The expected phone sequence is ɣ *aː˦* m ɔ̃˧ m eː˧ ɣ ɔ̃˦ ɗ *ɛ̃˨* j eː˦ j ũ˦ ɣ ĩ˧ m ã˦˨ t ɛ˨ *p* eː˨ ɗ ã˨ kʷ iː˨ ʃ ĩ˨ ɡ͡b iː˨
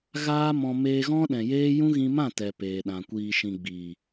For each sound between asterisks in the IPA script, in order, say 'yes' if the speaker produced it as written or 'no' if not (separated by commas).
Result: yes, yes, yes